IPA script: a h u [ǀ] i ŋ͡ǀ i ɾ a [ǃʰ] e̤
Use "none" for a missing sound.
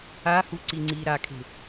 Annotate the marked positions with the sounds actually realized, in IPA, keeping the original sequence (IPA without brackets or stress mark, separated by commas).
ǀ, kʰ